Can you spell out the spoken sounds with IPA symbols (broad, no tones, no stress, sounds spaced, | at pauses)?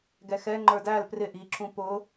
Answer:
ɡ ɛ x ɛ ŋ͡ǃ ə˞ d æ l p r ɪ ʔ i ǁ ũ p ʊ